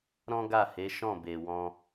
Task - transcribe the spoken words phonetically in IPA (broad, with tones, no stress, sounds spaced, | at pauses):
ɾ ɔ̃˦ ɡ a˦˨ h e˨˦ ʃ ɔ̃˦˨ b e˨ w ɔ̃˧